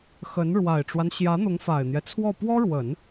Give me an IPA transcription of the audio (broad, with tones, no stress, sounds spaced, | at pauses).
x ə˧˥ n ɻ w a˨˩ ɪ̯ ʈ͡ʂ w a˦ n ɕ j ä˧˥ n̪ ʊ˧˥ ŋ f a˨˩ ɪ̯ n̪ j ɛ˦ t͡sʰ w ɔ˥˩ p w ɔ˥ ɻ w ə˨˩˦ n